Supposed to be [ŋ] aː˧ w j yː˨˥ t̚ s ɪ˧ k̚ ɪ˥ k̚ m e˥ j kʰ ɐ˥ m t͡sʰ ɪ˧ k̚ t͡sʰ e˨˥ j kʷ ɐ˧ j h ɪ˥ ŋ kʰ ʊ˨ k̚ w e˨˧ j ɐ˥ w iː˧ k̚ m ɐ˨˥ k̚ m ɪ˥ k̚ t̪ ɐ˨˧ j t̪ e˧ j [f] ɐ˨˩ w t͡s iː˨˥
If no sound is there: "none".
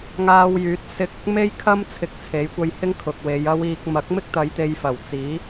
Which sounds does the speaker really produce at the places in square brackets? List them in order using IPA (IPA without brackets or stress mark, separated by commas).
ŋ, f